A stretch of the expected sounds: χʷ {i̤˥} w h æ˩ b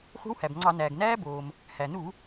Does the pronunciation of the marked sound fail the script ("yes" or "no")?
no